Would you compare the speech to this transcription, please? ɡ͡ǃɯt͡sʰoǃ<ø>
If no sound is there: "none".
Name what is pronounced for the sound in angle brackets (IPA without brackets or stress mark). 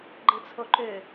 ø